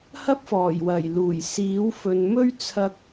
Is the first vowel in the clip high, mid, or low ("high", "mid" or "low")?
low